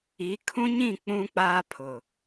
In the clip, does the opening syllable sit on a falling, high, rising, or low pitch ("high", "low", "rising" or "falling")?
rising